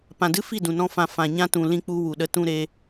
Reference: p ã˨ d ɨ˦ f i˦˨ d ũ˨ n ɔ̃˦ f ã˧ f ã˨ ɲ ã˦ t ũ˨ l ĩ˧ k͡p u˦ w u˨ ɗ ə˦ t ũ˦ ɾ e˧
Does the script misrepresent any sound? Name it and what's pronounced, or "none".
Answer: none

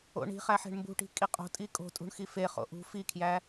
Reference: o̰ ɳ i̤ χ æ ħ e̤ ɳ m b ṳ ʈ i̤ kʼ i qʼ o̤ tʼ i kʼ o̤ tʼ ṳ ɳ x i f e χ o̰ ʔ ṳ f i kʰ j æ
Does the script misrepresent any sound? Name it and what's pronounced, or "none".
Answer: none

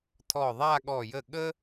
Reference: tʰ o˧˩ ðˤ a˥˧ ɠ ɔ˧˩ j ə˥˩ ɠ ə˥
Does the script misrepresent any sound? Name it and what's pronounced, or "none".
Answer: o˧˩ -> ɔ˧˩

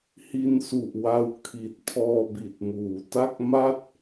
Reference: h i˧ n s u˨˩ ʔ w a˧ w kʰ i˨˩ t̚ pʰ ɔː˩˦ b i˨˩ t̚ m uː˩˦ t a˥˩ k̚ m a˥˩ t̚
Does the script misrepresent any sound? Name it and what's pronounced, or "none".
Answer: ɔː˩˦ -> ɔː˧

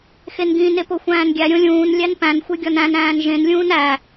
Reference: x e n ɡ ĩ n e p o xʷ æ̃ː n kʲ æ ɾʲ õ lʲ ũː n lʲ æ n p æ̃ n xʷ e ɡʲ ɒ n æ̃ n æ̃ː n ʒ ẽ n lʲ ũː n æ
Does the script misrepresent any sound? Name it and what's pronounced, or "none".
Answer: kʲ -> ɡʲ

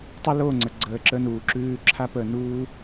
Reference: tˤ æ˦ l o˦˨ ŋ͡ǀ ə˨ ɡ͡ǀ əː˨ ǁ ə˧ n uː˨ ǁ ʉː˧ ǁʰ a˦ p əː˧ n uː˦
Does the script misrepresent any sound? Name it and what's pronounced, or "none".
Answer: æ˦ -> ə˦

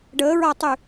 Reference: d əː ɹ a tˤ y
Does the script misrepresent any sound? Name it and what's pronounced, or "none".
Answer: d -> ɖ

